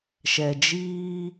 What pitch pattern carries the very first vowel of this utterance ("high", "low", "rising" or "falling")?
low